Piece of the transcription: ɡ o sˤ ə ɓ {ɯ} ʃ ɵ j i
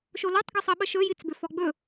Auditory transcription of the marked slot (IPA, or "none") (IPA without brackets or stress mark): ə